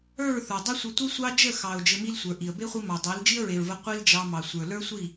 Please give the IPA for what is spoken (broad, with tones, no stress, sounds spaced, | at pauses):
ə˞˦˨ ɹ θ ə˞˨ dˤ ə˦ sʷ ə˧ tʷ i˦ sʷ ɑ˦ d͡ʒ ə˦˨ x ɑ˨ ʊ̯ d͡ʒ ɘ˧ m i˦ l sʷ ə˞˨ ʔ i˨ ə̯ b e˦ χʷ i˧ m ɑ˨ dˤ e˨˦ l d͡ʒ i˦ ə̯ ɹ e˨ ɹ v ə˧ qʷ i˦ l d͡ʒ ɑ˧ m ɑ˨ sʷ ə˞˨ l ə˞˦ sʷ i˦˨